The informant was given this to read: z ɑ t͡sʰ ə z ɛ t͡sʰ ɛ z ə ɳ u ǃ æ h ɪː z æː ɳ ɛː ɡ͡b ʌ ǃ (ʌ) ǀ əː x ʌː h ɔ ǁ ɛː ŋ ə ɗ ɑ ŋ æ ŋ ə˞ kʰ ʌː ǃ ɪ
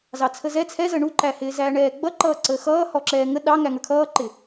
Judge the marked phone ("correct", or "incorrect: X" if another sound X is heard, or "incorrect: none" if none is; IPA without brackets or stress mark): incorrect: ʌː